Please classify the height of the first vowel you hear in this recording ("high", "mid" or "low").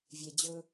mid